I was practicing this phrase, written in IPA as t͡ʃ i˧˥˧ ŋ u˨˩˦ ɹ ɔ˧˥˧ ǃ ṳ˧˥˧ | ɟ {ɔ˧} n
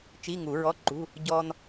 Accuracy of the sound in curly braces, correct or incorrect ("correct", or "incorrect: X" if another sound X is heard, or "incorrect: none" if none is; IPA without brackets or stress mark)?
correct